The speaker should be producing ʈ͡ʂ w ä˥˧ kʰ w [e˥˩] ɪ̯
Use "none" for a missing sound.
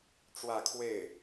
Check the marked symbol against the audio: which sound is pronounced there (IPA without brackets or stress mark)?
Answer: e˥˩